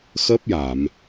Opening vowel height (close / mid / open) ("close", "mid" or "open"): mid